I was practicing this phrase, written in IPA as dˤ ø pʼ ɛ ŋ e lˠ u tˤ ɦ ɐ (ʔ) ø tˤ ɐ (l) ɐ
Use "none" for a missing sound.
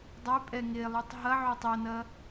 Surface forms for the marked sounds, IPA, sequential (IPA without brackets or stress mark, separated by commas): ʕ, n